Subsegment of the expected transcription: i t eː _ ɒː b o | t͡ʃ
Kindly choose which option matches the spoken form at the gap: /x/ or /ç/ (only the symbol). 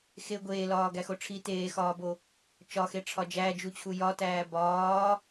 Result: x